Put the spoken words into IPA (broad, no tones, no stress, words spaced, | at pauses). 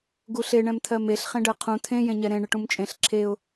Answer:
ɡuɬe ɳɛ̃mt̪ʰɜmeɬ χẽɖɜqʰũ t̪ʰẽ jẽɲɛɾẽ ɳɪʈũmt͡ʃʼẽɬ ǁʰeʊ̯